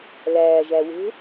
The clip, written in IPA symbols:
l æː ʒ æ w e̤

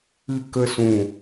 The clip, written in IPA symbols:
ɨ˨ k ə˨ s ũ˨

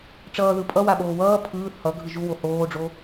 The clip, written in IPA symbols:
ʈ͡ʂ ʌː ð ɯ pʼ ʌ w a ɓ oː w ʌː pʰ ɯː θ h ʌ ɡʱ ɯ ʒ u w o h oː ɖ͡ʐ o

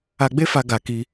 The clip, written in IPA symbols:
a˧ ɡ͡b e˦ f a˧ ɡ a˧ k i˧

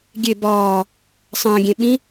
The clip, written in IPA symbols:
ɡʲ e b ɒː | sˤ ə̃ː ɡʲ ẽ ɓ ĩ

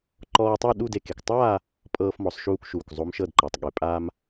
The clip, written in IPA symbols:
ǃ ɔː˧ tˤ o˥˧ ɗ u˥˧ d e˧ k e˩˧ k tˤ aː˥˧ | pʼ ɤː˧ f m ɔ˩˧ sˤ ʃ uː˧ k ʃ uː˩ k zˤ o˦˥ m ʃ ɤ˥˧ d ǃ a˩˧ tˤ ɠ e˩˧ pʼ aː˧ m

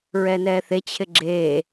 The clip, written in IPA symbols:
ɹ ɛː n ɛː θ e t͡ɕʰ ɪ ɡ͡ǁ eː

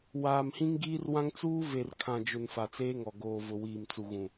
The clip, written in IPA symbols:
w aː˨ m h ĩ˦ ŋ ɡ iː˦ r w ã˦ ŋ t͡s uː˦ v e˨ r kʰ ã˨ d͡ʒ ʊ˨ n f a˨ t͡s eː˦ ŋ ɔ˨ ɡ oː˨ v ʊ˨ w iː˨ m t͡s u˨ ɣ ũ˨

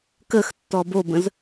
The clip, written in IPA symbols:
k ə x tː ɔ b o b ə̃ z

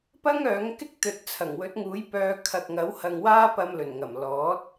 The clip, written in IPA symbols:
p ɐ˥ ŋ œː˨˥ ŋ k ɪ˥ k̚ t̪ ɵ˨ t̚ t͡sʰ ɐ˨˩ ŋ w ɵ˨˥ t̚ ŋ uː˨˥ j p œː˧ kʰ ɐ˨ k̚ ŋ ɐ˨˥ w h ɐ˧ ŋ w aː˥ p ɐ˧ m l ɵ˨˩ n ŋ ɐ˨˩ m l ɔː˨˥ t̚

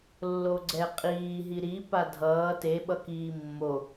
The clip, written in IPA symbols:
lː o ɡ͡ǀ ɛ qʼ iː ɦ i ɾ i p a dʱ ʌː t e ɓ ʌ k iː mː o

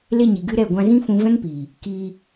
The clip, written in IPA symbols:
l e˧ ɲ i˨ ɡ ɨ˧ ɾ ɛ˦˨ ɡʷ ã˧ z ĩ˦ f ũ˧ v ɛ̃˦ ŋ p iː˨ | k iː˧

